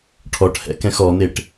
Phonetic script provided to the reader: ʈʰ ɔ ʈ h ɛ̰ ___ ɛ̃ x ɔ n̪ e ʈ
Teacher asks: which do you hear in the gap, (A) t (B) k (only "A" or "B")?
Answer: B